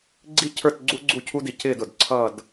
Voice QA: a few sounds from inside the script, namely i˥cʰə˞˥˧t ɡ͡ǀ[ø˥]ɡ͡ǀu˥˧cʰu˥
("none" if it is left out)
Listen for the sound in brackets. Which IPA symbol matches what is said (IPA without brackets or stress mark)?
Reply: u˥